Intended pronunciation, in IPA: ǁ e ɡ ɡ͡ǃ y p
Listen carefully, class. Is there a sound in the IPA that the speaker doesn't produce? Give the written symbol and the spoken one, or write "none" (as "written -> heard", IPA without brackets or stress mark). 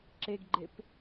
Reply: y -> e